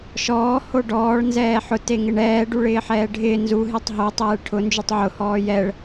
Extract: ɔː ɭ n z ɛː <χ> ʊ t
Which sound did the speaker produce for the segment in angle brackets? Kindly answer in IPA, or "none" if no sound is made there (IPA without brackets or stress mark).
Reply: ħ